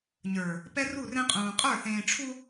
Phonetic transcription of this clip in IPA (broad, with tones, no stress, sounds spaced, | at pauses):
ɲ ə˞˨ | p ɛ˦ r u˦˨ r ẽ˦ qʼ ũː˨ qʼ ə˞˦˨ θ ẽː˨ ʈ͡ʂʰ u˦